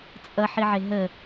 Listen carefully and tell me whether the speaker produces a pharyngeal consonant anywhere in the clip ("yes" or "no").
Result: yes